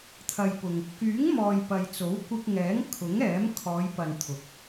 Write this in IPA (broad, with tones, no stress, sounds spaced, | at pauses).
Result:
t̪ʰ ɐ˨ j p ʊ˨ ŋ | k yː˨˥ ŋ m ɔː˨ j p ɐ˨ j t͡s o˨˥ w kʷ ɪ˧ k̚ ŋ ɛː˨˥ ŋ kʰ ʊ˨˥ ŋ ɛː˨˥ m kʰ ɔː˨˧ j p ɐ˨ n t̪ʰ ʊ˨˥ k̚